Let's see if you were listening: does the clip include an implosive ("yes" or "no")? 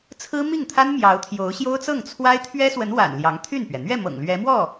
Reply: no